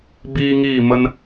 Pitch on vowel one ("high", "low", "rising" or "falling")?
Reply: high